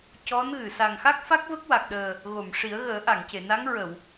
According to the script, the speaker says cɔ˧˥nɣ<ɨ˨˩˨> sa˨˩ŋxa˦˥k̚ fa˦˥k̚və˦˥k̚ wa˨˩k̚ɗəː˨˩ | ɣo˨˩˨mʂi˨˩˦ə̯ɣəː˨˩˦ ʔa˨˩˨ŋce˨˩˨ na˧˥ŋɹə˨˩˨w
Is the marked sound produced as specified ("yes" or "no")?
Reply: yes